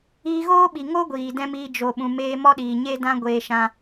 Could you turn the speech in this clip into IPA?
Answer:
iː˧ɣoː˦ɓi˨ŋo˦ ɡʷiː˨dɛ̃˦miː˧ d͡ʒo˨ɓũ˨meː˧ mɔ˦ɗiː˨ɲe˦dã˦ ɡʷeː˧ʃã˧

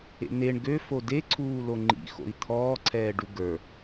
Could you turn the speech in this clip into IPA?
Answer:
ḛn̪eɳ ɡø fodeǀʰuːlo ŋ͡ǃḭxo̰i̯ t̪ʰɔːǀʰɛː ɖuɡə˞

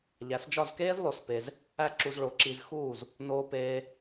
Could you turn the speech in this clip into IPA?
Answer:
ʎæ˩˥sd͡ʒɒ˥˩zkeː˥z lˠo˧spe˧z | æ˥ǁu˧zɭo˩˥ ǁi˧z xuː˥˩z | noː˧peː˧

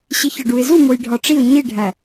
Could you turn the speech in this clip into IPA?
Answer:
ɕiçɒɖuɪ̯zu mojɖʱɒʈ͡ʂiʊ̯ ɲiɖʱæ

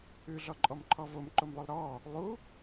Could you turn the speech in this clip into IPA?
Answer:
ʉɮɔǃʼɔmǃʰɔ vomǃomlˠʉlˠ ɾɔ | lˠu

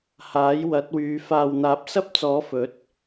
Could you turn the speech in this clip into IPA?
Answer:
haː˨˥jwɐ˨˥t̚wyː˨˧ faː˨wn̪aː˨˥p̚sɐ˥p̚t͡sɔː˨˥ fɵ˨˥t̚

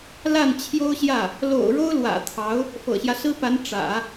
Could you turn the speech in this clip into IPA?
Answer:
la˥˩nt͡ɕʰjo˥ʊ̯ɕjä˥˩ | lo̰˨˩ʊ̯ ɻo˥ʊ̯lwä̰˨˩t̪ʰɑ˧˥ʊ̯ | fɤ̰˨˩ɕjä˦sɹ̩˥pa˧˥n ʈ͡ʂä̰˨˩˦

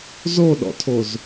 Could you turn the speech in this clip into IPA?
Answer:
zoɗɔ̰tʰoz

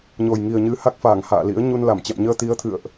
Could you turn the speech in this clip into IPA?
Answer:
ɲo˨˩jŋi˨˩ə̯ɲɨ˨˦ ha˦˥k̚faː˧˩ŋ ha̰ː˧˨lḭ˧˥ə̯ ɲu˧n la˧˩mt͡ɕɛ̰˧˨m ɲəː˧t̪i˨˦ə̯t̪ʰɨ̰˧˨ə̯ʔ

